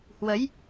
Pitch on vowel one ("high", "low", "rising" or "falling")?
rising